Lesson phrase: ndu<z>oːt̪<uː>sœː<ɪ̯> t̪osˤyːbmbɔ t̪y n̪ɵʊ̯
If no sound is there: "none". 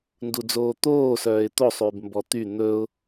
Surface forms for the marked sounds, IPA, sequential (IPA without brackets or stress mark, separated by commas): d͡z, oː, ɪ̯